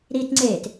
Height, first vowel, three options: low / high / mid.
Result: high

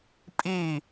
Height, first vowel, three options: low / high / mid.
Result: high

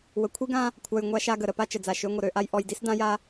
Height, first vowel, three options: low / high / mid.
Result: mid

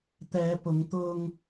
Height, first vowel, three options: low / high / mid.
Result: mid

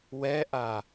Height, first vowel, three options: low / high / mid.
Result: mid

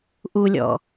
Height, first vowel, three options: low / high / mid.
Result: high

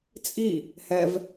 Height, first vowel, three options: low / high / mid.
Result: high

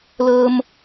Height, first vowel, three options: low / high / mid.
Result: mid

